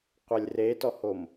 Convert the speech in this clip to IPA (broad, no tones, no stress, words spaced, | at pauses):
qʷɛlʲretɔhom